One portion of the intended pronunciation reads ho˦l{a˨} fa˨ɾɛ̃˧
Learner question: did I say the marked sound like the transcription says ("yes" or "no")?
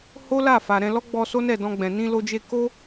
no